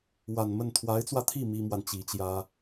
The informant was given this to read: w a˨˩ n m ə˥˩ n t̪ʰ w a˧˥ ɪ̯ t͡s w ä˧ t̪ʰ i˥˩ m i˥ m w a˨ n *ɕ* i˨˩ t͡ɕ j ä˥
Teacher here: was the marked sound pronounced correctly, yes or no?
no